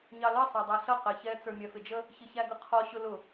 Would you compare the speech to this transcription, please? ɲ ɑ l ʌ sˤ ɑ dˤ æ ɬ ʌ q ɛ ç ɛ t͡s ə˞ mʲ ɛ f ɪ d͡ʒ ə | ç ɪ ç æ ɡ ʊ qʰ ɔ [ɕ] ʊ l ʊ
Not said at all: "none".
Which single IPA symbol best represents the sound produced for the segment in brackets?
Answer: ɕ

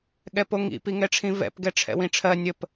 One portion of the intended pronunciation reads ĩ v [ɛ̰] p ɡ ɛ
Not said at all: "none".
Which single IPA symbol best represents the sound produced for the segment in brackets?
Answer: ɛ̰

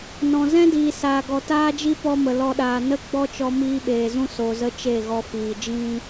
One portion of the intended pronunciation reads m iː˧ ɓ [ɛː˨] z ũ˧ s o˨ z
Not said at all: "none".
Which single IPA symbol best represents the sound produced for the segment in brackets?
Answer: eː˨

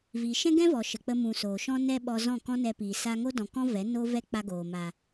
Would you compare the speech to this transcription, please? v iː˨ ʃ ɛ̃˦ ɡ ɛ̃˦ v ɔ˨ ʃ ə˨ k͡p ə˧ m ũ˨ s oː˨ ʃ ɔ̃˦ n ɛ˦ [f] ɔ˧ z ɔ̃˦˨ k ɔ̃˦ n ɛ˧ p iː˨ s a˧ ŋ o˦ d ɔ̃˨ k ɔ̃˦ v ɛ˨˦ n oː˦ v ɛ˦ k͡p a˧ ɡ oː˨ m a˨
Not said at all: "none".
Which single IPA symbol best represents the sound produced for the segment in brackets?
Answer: ɓ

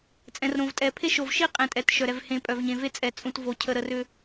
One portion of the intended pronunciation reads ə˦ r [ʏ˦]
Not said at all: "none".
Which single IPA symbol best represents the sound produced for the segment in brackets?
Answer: ʏ˦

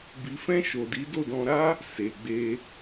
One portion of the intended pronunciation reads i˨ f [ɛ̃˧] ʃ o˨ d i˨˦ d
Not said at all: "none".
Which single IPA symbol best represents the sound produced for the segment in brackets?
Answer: ɛ̃˧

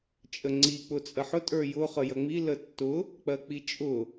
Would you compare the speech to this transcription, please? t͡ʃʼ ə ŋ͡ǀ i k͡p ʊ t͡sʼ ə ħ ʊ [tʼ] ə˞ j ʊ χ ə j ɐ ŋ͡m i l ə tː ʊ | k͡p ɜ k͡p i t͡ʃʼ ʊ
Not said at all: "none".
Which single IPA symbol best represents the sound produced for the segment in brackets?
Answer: tʼ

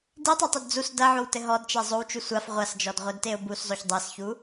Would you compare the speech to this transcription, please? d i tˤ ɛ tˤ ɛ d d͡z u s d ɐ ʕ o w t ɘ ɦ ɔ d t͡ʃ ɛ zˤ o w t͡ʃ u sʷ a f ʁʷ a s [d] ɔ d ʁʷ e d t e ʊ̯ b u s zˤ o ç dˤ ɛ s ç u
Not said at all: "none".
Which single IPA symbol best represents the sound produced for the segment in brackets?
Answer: d͡ʒ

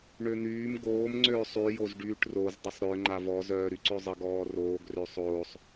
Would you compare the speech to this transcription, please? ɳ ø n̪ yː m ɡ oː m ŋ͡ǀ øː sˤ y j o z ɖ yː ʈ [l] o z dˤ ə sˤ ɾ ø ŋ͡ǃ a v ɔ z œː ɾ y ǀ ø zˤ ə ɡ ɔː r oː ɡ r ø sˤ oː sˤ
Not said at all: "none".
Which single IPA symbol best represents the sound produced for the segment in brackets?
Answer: r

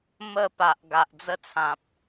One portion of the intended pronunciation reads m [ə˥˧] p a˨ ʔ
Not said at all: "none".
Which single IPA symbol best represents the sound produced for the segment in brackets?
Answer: ə˥˧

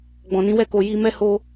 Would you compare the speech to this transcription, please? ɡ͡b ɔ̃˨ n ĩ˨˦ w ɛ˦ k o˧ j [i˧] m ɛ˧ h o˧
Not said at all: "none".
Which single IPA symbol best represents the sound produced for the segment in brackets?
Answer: i˦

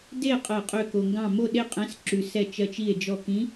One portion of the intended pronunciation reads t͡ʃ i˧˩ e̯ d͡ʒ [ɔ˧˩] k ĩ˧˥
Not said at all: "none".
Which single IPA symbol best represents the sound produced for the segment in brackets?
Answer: ɔ˧˩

